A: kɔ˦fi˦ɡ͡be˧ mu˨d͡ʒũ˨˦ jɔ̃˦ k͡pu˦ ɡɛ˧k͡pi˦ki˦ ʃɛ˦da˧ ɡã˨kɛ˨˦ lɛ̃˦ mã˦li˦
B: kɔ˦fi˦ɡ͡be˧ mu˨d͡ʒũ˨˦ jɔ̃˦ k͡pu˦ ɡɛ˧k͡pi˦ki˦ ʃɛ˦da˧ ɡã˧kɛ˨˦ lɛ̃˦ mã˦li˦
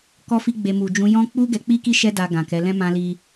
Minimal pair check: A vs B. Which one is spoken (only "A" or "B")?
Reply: A